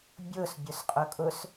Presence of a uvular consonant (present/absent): present